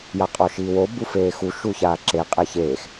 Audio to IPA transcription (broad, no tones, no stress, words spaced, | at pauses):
jaqʼɔʃiːwo bufeːxu ʃuçaːǁe qʼeçeːx